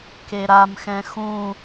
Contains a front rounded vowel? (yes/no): no